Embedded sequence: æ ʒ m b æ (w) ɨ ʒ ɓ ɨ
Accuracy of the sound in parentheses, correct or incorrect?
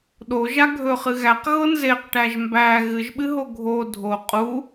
incorrect